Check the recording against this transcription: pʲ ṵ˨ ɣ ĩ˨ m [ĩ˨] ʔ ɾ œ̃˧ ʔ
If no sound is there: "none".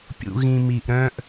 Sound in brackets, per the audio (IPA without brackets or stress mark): i˨